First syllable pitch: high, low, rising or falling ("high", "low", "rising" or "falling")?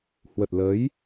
low